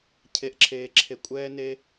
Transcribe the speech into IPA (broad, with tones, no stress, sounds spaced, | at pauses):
cʰ e˦ ʔ ǁʰ eː˦ ǁʰ e˦ kʷʼ ɛː˦ n e˦